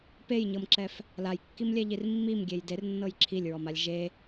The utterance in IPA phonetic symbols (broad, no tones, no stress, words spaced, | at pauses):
pejɲɤmǁɛf | lajkːimlʲɛʎir mːimɡʲej dernːɤj ǁʰilʲɹɔmalʲ ʒe